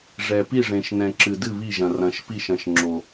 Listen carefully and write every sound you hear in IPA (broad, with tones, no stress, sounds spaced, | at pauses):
ʐ ɛ˨ p i˦˨ ʐ ẽ˨ ʃ n ɛ̃˨ ǁ ɨ˨ d ɨ˦˨ β i˦˨ ʒ ɐ̃˨ r ɐ̃˨ ʃ p i˦˨ ʃ ɐ̃˨ ʃ ŋ͡ǁ o˨